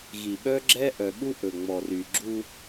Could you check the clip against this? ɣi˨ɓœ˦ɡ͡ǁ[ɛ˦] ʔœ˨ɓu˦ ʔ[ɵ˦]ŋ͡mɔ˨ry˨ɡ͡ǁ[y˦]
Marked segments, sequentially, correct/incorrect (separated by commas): correct, incorrect, incorrect